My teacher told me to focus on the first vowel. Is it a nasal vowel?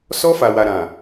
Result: no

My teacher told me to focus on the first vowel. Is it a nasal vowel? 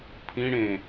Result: yes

